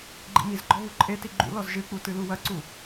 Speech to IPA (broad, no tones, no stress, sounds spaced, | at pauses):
ɡ͡ǃ ḭ m i z ɡ͡ǃ ɔ β u ǃʼ e t i ɡ͡ǃ ṵ l ɔ z ʒ ɨ k͡p u t ɨ l u w ɐ ǀ u